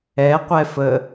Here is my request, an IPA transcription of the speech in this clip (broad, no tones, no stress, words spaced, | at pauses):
ɛqʷɛfə